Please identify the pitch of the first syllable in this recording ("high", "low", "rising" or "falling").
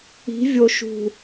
rising